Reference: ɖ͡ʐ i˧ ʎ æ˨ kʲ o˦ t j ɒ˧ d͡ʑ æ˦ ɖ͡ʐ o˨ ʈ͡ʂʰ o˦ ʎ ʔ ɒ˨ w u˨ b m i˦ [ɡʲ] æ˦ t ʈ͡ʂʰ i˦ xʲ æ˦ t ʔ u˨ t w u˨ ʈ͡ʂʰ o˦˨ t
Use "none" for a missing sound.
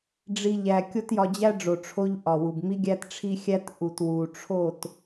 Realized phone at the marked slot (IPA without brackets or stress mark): ɡʲ